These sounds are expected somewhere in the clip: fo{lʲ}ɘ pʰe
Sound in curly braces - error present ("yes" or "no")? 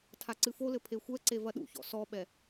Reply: yes